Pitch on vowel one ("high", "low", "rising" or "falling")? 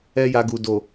high